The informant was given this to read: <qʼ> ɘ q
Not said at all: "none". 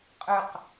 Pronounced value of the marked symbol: qʼ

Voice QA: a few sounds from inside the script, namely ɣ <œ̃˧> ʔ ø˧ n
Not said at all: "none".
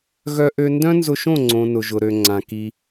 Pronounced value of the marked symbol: œ˧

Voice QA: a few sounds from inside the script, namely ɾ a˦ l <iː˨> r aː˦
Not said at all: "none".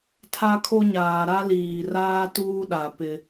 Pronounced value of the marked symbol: iː˨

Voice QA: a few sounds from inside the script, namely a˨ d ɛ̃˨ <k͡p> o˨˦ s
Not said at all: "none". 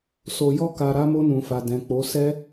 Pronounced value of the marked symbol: k͡p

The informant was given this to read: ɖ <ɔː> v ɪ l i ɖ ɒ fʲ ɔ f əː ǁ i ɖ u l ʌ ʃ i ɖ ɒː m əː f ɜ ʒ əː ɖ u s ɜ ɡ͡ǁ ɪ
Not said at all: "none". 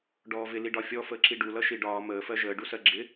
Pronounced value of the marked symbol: ɔː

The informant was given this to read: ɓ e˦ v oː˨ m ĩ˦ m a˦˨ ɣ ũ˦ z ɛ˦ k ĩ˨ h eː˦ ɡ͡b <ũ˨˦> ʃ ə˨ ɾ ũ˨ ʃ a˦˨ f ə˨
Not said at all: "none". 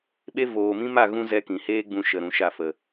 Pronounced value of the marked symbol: ũ˧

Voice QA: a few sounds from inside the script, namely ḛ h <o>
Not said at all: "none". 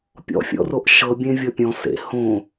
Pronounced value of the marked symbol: õ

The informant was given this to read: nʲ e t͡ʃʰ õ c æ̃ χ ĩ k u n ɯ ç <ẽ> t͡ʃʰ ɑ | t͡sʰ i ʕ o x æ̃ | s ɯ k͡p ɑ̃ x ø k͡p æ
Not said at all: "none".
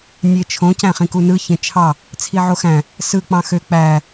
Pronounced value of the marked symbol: ẽ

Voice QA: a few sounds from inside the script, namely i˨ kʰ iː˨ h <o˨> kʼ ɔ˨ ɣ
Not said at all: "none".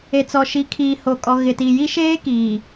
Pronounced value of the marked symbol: o˨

